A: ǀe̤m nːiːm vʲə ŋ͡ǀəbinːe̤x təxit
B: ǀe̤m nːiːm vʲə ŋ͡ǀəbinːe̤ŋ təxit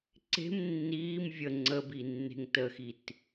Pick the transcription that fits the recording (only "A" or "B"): B